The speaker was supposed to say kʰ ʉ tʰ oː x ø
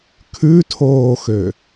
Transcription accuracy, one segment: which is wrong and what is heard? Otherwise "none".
none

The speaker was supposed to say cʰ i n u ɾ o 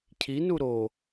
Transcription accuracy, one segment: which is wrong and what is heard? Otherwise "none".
none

